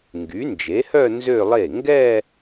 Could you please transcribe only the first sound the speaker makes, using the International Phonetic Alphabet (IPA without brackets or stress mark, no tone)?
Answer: ŋ